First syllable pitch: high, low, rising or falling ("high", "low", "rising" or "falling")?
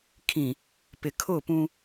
low